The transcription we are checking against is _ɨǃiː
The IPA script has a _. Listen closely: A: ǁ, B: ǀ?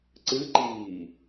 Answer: B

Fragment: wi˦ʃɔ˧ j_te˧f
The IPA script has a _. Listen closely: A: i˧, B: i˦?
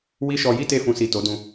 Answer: B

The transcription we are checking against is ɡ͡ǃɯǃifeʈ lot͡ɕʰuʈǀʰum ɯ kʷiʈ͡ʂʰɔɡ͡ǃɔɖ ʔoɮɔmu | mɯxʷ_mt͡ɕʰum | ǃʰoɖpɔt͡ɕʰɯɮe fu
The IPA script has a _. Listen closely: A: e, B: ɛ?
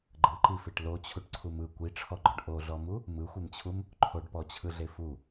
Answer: A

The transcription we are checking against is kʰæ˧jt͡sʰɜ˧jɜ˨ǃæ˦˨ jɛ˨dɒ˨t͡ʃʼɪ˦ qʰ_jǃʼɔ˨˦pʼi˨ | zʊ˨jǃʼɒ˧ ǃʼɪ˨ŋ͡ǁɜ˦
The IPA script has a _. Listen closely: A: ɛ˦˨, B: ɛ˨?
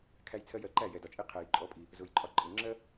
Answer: B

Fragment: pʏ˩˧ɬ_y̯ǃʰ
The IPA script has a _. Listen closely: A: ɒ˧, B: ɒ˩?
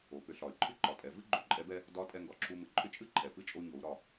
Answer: B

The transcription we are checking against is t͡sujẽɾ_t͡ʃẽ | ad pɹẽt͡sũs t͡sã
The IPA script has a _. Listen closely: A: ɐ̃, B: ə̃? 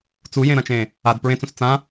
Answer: A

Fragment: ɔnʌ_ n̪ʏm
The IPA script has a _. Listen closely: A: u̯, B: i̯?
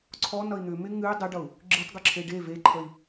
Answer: B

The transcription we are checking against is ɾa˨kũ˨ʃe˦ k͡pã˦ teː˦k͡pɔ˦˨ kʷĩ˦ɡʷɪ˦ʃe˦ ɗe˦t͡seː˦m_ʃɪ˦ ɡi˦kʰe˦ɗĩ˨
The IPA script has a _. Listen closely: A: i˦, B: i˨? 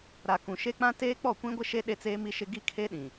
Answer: A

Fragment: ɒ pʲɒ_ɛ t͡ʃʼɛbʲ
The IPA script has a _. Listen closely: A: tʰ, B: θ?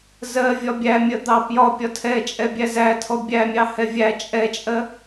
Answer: A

